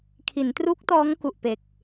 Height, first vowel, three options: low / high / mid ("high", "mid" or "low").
high